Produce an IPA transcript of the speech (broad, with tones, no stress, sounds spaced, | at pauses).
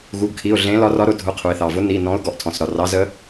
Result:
ɣ u˩˧˩ ɡ kʰ i˩˧˩ ʊ̯ ɮ ẽ˧˥ l ɒ˧˥ r ɒ˧˥ ɾ ʊ˨˩˦ dʱ ʊ˩˧˩ qʰ u˩ ɪ̯ θ ɑ˩ v ʊ˧˥ n i˩˧˩ n ɔ̃˧˥ ʊ̯ ɡ ɔ˩ ʔ tʰ ɔ̃˩ s ɾ ɒ˩ r ɑ˧˥ z ə˧˥